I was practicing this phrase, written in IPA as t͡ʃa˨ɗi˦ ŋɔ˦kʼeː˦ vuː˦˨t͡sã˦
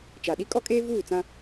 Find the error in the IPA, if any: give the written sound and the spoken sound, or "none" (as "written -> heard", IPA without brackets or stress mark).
ŋ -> kʼ